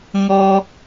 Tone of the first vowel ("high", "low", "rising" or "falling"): high